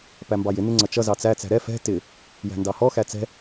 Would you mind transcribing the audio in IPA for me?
pæmbɑjɪ nɪŋ͡ǀʌt͡ʃʌ zɑt͡sæ t͡sæ̤ɾɛ fɛ̤ tɪ | jæ̤ndɑhɔ xæt͡sɛ̤

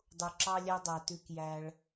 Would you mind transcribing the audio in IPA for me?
dˤu˨ǁɑ˦lʲæ˦dˤæ˨ tʉ˦kjæ˦ɭ

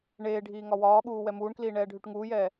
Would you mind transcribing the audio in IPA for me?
ɳeːɖʱiː ŋɒwɒːɠuː wɛmuːɳkliː ɳɛːɖʱyʈŋuːjɛː

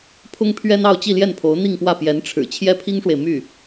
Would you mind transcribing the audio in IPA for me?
pʰʊ˥ŋpʰɥɛ˥n ɑ˥˧ʊ̯t͡ɕi˥˧ljɛ˥˩npʰo˧˥ʊ̯ n̪i˥˧ŋpwä˥˩ pjɛ˧˥nʈ͡ʂʰɻ̩˨˩ t͡ɕʰjɛ˥˩pʰi˥ŋʂwe˨ɪ̯ my˥˩

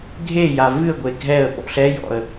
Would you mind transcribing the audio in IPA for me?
ɡʱeja vɨə̯ ɡʷeɡʱɛə̯ ɓɔ̰ɬɛjɔ̰ə̯

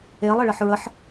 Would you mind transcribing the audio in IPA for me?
elˠɪɭəħ ɹəħ

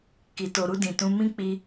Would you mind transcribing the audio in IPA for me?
ki˨to˨ɾu˧ dĩ˨tũ˧ mĩ˧ k͡pi˧

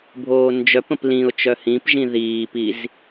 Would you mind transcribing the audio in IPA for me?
bʱoːnd͡ʒœpə̃p lĩʊ̯ t͡ʃœhĩpʒĩ ðiːpiz

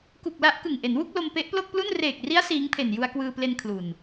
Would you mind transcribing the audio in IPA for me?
ku˨˩k̚la˦˥ʔ kɯ˨˩ŋʔe˩˦nwu˥˩k̚lo˧m pe˦˥ʔplo˥˩k̚plu˥˩n reː˨˩k̚ri˦˥a̯ siː˦˥ŋpʰe˨˩n ju˧a̯kwɯː˧ple˧n kʰlu˨˩n

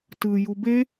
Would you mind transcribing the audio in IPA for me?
tɯ jube

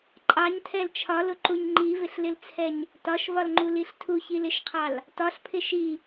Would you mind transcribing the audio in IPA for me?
ǃʼɑɲtʰɛl t͡ʃʰɒlʊǃuɲ ŋ͡ǃivɪɬlɪlt͡sʰɛɲ | tɒʃvɒlŋ͡ǃuliɬ tʰuçilɪʃqʰɑl | tɒɬpʰɪ ʃi

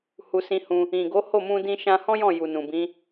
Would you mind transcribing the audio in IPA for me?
hu˧sĩ˧hũ˧ | ĩ˨ɡo˨˦ho˦˨mũ˧ dĩ˧ʃã˧hɔ̃˦jɔ̃˦˨ ju˨nũ˨bĩ˨˦

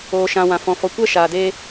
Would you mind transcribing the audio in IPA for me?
oː˨ʃã˨ wã˨ fɔ̃˨ fɔ˨kʷɛ˦ ʃaː˨deː˦

